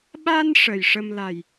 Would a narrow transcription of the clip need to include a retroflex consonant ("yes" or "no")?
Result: yes